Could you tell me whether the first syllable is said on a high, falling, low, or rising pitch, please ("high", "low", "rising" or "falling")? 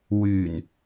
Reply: low